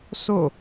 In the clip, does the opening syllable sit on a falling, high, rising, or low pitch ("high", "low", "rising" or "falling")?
falling